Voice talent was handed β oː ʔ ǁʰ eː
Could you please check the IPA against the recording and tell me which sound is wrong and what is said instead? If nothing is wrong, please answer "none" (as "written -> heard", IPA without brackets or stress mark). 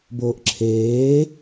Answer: β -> b